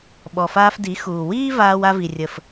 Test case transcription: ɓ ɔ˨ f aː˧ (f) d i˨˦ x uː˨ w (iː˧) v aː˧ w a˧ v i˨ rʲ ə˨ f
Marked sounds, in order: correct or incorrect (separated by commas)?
correct, incorrect